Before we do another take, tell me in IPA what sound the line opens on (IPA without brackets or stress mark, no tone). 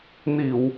n